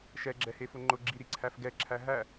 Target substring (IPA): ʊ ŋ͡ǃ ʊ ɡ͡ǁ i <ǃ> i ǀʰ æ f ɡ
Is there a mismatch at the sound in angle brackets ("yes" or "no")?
yes